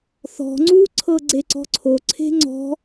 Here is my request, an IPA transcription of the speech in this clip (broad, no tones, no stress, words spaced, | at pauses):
θɔ̤ ŋ͡ǀuǀʰɤ ɡ͡ǀeǀɔ̤ǀʰo ǀʰe̤ŋ͡ǀɔ̤